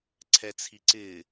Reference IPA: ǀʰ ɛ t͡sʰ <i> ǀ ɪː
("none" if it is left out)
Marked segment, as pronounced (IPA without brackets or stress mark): i